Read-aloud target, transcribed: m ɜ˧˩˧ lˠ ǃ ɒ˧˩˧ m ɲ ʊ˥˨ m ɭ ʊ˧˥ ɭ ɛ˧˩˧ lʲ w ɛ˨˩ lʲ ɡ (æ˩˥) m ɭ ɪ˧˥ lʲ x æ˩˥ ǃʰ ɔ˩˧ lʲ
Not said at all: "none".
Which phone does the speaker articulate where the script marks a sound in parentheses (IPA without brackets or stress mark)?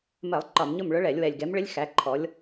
ɛ˩˥